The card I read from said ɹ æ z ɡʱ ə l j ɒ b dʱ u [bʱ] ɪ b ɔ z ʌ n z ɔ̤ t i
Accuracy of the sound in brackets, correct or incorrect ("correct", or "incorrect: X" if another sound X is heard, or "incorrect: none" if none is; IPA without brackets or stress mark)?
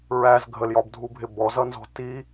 correct